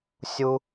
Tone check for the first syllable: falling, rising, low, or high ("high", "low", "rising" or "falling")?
high